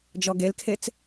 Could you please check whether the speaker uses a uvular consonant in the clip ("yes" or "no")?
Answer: no